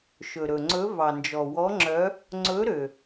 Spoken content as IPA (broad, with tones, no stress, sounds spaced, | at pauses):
ʃ ɵ˩ ɾ ɵ˩ ŋ͡ǀ ɵ˨˦ v ɑ˩ n d͡ʒ ɔ˩ w ɔ˨˦ ŋ͡ǁ œ˨˦ | ŋ͡ǀ ɵ˨˦ ɾ ø˩